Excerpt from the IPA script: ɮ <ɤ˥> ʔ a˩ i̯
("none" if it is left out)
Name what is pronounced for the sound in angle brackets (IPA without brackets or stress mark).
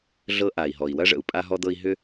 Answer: ɤ˥